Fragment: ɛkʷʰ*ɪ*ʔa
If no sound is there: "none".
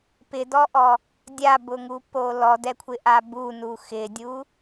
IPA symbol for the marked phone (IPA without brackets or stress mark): ɪ